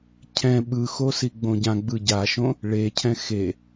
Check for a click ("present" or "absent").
absent